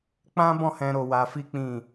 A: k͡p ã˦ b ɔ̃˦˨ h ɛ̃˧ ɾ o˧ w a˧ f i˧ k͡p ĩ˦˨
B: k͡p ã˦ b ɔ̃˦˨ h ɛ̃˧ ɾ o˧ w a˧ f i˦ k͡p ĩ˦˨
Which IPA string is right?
B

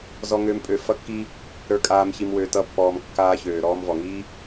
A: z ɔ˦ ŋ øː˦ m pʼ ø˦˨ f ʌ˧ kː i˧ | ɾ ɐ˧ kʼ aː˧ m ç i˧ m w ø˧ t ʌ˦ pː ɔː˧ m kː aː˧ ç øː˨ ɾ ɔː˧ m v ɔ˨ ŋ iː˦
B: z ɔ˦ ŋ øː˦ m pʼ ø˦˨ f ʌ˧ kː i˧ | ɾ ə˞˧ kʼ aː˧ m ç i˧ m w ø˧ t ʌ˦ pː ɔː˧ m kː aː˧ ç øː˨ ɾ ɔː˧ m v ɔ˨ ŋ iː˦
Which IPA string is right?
B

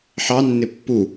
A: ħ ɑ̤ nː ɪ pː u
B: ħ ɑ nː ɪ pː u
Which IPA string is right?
B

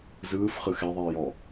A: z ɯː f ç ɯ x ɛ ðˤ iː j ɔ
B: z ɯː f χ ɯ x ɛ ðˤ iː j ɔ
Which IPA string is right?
B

